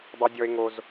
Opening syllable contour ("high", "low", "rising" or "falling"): high